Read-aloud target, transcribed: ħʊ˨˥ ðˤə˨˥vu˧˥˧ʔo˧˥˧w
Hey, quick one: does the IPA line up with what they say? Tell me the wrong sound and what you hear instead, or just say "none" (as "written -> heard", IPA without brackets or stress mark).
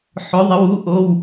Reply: v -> w